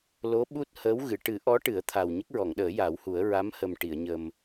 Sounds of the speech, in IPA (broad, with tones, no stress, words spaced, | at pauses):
lo˧˥ɓu˦˥t̚ həː˧˥wɣɨ˨˩˨ ʈɨ˨˩˦ʔɔ˧˥ ʈɨ˨˩˦ə̯t̪ʰa˨˩w ɲə˦˥k̚ɹɔ˨˩˨ŋɗəː˨˩˦ ja˨˩˦whu˨˩˦ə̯ ɹa˧˥mhə˨˩m ʈi˨˩˨ə̯ɲə˨˩m